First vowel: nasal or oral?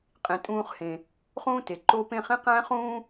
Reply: nasal